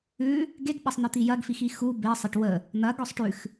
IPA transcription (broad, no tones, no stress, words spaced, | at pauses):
ʉ | ɡeɡɓɐsˤn̪ɪt̪i jɐɡfixi xu besˤɪʈ wə | n̪ɐɡɔsˤ ʈʉx